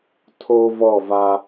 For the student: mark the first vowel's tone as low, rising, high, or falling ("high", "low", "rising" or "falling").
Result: high